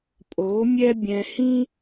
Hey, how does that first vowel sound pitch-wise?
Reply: rising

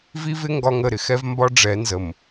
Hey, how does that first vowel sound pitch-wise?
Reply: high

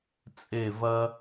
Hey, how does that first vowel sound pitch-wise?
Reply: falling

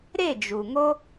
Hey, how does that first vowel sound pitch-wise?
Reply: falling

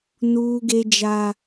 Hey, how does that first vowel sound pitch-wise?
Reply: high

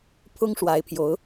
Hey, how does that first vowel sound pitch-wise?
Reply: high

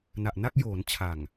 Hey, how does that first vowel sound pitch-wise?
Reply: low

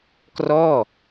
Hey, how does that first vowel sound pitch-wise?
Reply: falling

